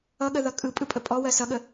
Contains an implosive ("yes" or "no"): yes